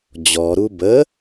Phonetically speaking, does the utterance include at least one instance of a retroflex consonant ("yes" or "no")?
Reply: no